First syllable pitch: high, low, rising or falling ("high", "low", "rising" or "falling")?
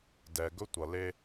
low